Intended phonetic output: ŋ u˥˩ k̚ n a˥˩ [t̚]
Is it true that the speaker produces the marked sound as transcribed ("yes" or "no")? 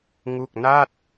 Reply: yes